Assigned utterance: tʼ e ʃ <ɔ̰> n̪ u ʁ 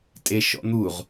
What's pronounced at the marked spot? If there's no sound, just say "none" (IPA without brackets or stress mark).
ɔ̰